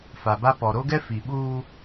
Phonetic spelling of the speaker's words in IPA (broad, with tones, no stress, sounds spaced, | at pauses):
f a˨ b a˦ p ɔ˨ ɾ o˦ ɡ ɛ˦ f i˨ ɓ uː˦